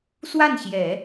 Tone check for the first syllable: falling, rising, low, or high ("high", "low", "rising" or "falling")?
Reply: falling